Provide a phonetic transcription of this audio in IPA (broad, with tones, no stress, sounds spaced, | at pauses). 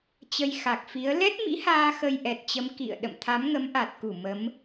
t͡ɕ ə˧ j x a˨˩ k̚ f i˨˦ ə̯ l ɛ˦˥ t̚ m ḭ˧˥ h aː˧ x ə˧ j ʔ ɛ˨˩ t̚ t͡ɕ ə˨˦ m k ḭ˧˨ ə̯ ɗ ə̰˧˨ m t̪ʰ a˨˦ m ŋ ə˨˦ m ʔ a˨˩ t̚ k u˧˩ m ə˨˦ m